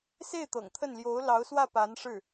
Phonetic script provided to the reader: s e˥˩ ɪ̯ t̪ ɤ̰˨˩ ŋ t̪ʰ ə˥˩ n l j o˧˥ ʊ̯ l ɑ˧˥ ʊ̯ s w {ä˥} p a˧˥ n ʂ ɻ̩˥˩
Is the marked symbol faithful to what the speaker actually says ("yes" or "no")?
no